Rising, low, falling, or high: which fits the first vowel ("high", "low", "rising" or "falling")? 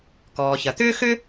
low